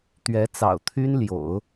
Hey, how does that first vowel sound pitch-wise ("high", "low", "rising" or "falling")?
rising